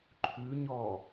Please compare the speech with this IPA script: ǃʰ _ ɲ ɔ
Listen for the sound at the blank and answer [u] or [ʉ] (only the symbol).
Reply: ʉ